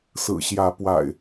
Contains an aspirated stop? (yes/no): no